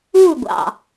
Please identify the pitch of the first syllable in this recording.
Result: falling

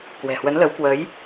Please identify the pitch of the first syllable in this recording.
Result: low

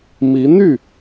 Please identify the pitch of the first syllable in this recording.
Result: rising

